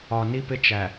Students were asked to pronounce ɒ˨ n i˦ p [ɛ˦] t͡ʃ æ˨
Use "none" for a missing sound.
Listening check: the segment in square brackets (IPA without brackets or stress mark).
ɪ˦